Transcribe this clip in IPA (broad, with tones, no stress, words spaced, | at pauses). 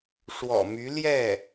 ʂwɔ̰˨˩my˧˥ ljɛ˥˩